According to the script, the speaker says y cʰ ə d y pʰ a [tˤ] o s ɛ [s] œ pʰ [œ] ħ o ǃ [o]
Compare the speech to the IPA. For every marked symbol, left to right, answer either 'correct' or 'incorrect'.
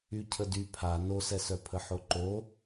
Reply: incorrect, correct, incorrect, correct

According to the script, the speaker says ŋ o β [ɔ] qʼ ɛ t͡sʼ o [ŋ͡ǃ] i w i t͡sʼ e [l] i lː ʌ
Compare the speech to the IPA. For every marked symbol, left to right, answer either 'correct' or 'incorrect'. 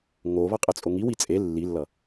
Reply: incorrect, incorrect, incorrect

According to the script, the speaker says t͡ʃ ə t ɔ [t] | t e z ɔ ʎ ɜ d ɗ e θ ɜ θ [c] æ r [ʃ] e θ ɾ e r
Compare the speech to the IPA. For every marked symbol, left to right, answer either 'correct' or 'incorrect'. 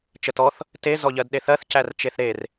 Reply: incorrect, correct, incorrect

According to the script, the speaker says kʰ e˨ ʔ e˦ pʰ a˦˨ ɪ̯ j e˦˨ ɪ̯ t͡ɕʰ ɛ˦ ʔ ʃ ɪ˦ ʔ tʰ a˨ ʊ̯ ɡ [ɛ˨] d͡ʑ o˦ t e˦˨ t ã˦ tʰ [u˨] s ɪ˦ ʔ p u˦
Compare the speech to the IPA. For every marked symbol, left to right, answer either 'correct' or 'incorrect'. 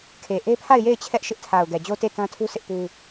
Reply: correct, incorrect

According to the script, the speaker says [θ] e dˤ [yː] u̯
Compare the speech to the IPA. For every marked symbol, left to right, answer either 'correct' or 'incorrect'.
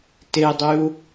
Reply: incorrect, incorrect

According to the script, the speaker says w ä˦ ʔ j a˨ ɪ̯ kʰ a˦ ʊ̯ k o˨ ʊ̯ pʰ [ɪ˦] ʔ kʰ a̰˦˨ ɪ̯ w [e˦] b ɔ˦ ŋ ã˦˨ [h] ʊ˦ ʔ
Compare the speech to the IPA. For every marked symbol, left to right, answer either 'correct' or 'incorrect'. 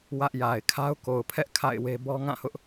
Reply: incorrect, correct, correct

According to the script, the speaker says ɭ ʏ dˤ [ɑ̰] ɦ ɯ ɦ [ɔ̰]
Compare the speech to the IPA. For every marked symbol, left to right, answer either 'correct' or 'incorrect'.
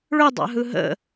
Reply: correct, incorrect

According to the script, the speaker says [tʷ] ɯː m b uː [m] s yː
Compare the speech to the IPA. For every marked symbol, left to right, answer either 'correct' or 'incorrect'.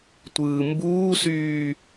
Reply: correct, incorrect

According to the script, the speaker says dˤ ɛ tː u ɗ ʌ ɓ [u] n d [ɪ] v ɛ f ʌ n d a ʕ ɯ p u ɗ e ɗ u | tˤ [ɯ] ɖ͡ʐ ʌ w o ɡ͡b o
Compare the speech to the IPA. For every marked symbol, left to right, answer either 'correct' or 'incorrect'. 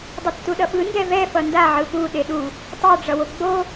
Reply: incorrect, incorrect, incorrect

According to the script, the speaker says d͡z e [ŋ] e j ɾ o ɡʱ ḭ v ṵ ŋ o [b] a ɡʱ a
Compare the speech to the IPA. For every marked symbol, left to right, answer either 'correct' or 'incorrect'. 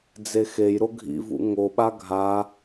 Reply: incorrect, incorrect

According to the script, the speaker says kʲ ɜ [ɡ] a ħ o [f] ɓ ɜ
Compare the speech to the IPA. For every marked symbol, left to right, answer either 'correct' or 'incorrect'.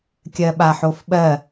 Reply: incorrect, correct

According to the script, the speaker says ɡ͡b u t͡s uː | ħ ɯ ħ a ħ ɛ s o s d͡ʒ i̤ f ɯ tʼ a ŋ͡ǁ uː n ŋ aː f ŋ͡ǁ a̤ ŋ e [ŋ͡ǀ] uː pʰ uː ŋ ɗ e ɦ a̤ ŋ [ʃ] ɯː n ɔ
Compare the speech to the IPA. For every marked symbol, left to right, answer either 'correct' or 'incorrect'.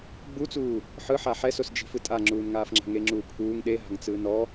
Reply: incorrect, incorrect

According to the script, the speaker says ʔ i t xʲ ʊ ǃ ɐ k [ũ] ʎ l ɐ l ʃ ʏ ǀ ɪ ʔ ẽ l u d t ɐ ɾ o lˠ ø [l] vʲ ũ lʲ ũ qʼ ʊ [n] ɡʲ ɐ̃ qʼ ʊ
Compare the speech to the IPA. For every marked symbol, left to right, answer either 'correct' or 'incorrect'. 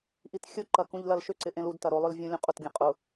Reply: correct, correct, incorrect

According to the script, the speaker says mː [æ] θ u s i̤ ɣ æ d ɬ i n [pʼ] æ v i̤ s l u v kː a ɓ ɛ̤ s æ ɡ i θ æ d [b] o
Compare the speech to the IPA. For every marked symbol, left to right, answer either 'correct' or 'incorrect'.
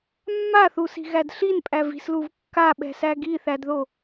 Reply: incorrect, correct, incorrect

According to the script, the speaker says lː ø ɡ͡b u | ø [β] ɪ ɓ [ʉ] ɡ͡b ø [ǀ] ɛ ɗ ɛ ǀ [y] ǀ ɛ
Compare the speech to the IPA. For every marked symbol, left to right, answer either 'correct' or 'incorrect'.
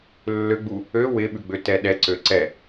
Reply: incorrect, correct, incorrect, incorrect

